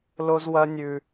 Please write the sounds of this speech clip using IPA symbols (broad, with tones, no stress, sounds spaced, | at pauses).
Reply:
l o˦ z w ɐ˦ nʲ ʉ˧